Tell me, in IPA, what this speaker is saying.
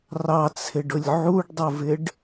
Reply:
rɑt͡sʰɪɖʊlʲ ʕuɖdˤʊvɪɖ

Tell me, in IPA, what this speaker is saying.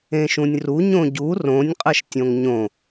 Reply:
ẽʃũnʲru ɲõɟu rõnʲ qʼɜʃtʲõŋɲõ

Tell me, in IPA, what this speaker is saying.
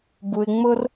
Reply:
bu˨ɪ̯ŋ͡mʊ˧r

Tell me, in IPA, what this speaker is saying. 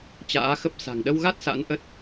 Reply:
t͡ɕa̰ː˧˥xə˦˥p̚ sa̤˨˩ŋɗə˧wɣa˦˥t̚ sa̰˧˥nʔə˦˥t̚

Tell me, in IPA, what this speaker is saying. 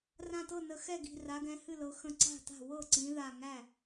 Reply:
rã˧˩tɤ˥˩ nə˧˩xɛ˥˩ɡi̤˧˩ ra˨˦ɡɛ̃˨˦hɨ˥˩ lɤ˨˦xə̃˧˩ǀa̤˥˩ta̤˥˩ wɤ˥˩ǀĩ˨˦ ða˧˩ ŋæ˥˩

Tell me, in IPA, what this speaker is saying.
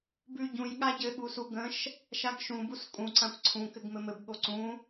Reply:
bʉ ɟũj ɠaɟɘ ɠusuɡə̃ʃ | ʃaɡʃũ buskʼũ ǀãkʷǀʰũ kɘɡmɘmɘb ɠoǀũ

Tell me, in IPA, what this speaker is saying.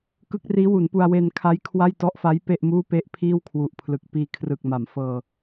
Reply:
kɯ˦˥k̚riː˦˥wu˩˦npu˧a̯ we˧nkʰa˦˥j kʰwa˥˩j tɔ˦˥ʔfa˦˥j pe˥˩ʔmuː˥˩pe˥˩ʔ pʰiː˥˩wkʰwu˨˩ʔpʰlɯ˨˩k̚ piː˧kʰrɯ˨˩k̚ma˩˦m fɤː˧

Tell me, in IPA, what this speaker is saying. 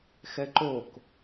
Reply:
xɛǃok

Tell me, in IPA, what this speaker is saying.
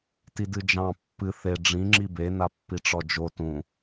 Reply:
tidɨd͡ʒɑ̃ pːɨ θe ɖ͡ʐĩ ŋ͡ǁibe napːiʈ͡ʂɔd͡ʒo tũ

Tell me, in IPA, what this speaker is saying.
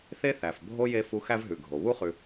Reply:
θe˦θæ˩fbʱo˦ je˥fu˦ xæ˥vɦʉ˩ɡʱo˩ βu˥χʉ˨

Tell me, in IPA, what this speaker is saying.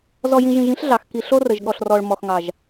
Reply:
zɔ˨jĩ˨ʒĩ˨ʒ ĩ˦ɬɮɑ˨x ki˨ɬo˦rə˨ʒ ɠɔ˨ɬrɔ˨ɭ mɔ˨xŋɑ˨ʒ

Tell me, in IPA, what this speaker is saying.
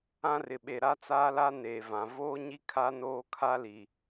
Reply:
ã˦rɪ˨ɓe˨ɾa˦ t͡saː˦la˦ ne˨vã˨ voː˦ɲi˦ kʰa˦ noː˦kʰa˦li˨

